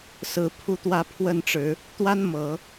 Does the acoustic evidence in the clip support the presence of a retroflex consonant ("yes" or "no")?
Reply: yes